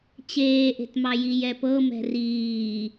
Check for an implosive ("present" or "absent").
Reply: absent